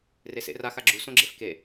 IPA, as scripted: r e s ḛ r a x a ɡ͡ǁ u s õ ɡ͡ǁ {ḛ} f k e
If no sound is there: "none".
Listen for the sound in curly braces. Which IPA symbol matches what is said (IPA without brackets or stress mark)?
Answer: e